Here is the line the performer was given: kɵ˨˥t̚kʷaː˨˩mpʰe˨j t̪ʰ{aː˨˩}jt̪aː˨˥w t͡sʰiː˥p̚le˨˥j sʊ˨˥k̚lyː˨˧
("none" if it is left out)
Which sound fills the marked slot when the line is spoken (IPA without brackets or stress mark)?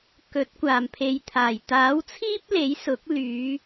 aː˨˩